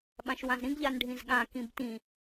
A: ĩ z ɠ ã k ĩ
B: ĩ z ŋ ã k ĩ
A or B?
A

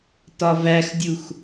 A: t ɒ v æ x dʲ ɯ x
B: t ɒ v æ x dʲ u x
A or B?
B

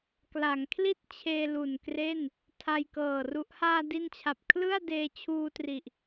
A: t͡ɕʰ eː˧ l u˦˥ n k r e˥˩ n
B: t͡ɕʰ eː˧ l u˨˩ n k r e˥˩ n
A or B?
B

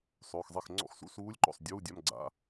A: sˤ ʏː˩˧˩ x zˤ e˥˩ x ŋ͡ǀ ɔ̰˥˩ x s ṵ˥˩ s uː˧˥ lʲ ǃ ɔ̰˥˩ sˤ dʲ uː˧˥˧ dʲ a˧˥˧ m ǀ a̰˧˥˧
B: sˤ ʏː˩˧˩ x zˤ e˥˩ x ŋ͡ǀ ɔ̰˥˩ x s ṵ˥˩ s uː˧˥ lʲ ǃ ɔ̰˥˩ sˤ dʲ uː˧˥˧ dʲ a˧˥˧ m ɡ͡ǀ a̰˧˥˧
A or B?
B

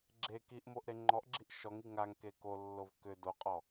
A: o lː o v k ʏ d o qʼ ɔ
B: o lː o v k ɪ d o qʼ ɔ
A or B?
A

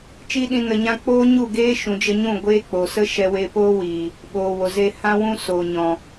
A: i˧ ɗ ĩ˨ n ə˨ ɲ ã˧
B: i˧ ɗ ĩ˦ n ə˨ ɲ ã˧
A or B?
A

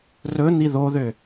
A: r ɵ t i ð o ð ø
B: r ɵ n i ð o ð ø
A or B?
B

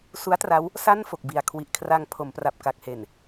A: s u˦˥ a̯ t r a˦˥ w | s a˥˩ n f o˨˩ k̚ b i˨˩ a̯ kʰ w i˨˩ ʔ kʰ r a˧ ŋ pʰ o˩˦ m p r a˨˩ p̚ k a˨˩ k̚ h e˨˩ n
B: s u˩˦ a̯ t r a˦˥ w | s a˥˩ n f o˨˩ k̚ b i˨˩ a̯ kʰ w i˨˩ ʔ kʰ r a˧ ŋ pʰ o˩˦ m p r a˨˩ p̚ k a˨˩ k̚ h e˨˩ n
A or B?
A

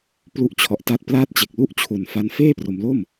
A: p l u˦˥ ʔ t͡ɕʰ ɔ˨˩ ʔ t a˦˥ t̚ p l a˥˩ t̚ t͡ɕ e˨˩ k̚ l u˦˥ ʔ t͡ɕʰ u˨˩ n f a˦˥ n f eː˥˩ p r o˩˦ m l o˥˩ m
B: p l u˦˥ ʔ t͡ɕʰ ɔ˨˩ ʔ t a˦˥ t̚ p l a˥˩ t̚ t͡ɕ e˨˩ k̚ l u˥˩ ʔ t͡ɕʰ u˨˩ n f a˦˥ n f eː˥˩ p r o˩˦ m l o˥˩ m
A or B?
B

